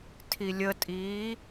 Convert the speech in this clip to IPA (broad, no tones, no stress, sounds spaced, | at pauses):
tʰ i lʲ ə tʼ iː